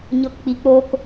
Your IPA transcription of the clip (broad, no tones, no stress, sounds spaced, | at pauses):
ɲ ɤ k k͡p i k͡p o k